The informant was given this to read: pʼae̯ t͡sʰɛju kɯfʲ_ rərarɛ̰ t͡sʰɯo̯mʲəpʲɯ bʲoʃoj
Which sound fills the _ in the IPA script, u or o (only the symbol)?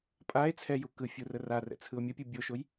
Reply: u